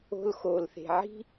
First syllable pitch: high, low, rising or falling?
high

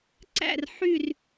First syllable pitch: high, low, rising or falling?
falling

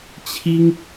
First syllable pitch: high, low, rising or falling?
high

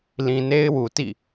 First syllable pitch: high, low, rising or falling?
low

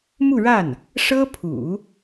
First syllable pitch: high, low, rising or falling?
falling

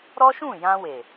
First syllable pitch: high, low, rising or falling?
high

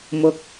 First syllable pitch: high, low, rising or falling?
low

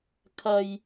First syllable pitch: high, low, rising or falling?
high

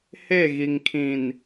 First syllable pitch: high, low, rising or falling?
falling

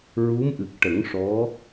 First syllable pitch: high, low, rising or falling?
rising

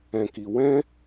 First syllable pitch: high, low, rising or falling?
low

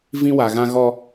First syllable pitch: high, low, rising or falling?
high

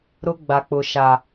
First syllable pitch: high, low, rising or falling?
high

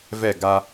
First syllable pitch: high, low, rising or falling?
falling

